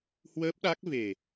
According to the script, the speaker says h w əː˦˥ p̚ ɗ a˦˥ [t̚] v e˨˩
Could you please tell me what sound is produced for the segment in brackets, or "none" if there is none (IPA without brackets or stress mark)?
k̚